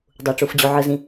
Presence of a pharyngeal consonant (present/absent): present